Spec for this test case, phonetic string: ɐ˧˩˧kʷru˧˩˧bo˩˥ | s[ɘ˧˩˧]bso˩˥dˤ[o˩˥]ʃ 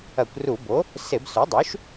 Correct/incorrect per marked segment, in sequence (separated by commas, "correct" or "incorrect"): incorrect, incorrect